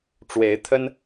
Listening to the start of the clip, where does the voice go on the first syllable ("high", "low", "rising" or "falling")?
rising